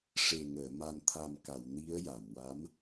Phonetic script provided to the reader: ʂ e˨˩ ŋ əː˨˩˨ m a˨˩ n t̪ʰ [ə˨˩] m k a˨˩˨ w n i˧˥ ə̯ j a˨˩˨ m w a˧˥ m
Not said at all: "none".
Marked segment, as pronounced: a˨˩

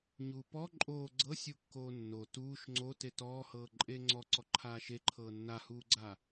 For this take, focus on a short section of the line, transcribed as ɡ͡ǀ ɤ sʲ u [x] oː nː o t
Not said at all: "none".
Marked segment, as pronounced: kː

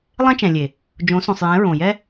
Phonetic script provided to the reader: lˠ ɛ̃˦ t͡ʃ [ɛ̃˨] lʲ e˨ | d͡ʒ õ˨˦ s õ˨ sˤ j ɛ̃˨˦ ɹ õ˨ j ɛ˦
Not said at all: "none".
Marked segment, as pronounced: ɛ̃˨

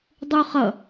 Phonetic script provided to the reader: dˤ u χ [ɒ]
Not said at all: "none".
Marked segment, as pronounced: ʌ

